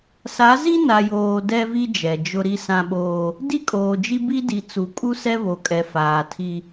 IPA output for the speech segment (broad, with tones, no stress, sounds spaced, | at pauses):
s a˨˦ z i˦ n a˨ j oː˦ d ɛ˦ v i˦ d͡ʒ ɛ˨ d͡ʒ ʊ˦ ɾ i˦ s ã˦ ɓ oː˦ | d i˦ kʼ oː˨ d͡ʒ i˦ b i˦ d i˨ t͡s u˨ kʼ u˦ s ɛ˦ β o˨ kʼ ɛ˨ f aː˨ tʰ i˦